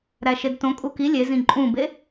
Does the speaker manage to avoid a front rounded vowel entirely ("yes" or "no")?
yes